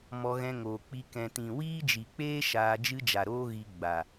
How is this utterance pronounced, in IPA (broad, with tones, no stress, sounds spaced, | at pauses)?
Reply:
m ɔ˧ ɣ ɛ̃˧ ŋ oː˨ k͡p i˧ k ɛ̃˨ t ĩ˨ w iː˦ d͡ʒ i˨ k͡p eː˦ ʃ aː˧ d͡ʒ ɨ˦ d͡ʒ a˨ ɾ oː˦ ɣ i˧ ɡ͡b a˨